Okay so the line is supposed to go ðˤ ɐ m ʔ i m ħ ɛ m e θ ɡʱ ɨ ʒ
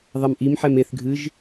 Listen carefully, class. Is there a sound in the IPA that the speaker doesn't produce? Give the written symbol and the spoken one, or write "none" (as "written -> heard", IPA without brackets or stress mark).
none